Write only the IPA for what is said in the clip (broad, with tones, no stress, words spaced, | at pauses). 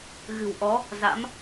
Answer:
ɣɨ̤˨˩wʔɔ˨˦ | za̰˧˥m